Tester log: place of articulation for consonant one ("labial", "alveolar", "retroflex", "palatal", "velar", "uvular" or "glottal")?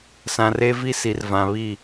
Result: alveolar